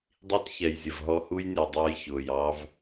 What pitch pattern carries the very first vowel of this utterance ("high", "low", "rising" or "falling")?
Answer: high